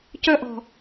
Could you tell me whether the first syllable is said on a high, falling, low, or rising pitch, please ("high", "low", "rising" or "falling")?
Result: high